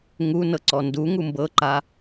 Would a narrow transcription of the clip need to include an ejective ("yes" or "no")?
no